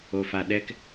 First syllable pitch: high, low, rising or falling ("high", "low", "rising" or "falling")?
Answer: low